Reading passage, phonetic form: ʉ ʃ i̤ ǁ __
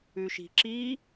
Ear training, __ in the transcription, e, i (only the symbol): i